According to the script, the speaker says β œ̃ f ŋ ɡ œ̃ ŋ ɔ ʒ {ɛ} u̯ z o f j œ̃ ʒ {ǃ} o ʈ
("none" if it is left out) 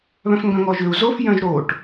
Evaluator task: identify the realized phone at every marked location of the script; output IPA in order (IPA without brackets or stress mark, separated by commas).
ʏ, ɾ